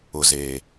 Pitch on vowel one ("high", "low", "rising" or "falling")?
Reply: low